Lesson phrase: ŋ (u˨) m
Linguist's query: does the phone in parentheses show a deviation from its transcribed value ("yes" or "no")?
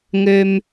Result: yes